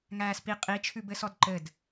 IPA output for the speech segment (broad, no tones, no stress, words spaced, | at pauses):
ŋæːspi qʼi t͡ʃʰʉbɘsɔdǃɘd